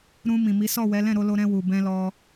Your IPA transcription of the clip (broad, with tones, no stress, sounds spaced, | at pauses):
ɾ ũ˧ m ĩ˨ m i˨˦ s ɔ˦˨ w ɛ˨˦ l ɛ̃˦˨ ɾ o˧ l o˧ ɾ ɛ̃˧ w u˨ b ɛ̃˧ l ɔ˧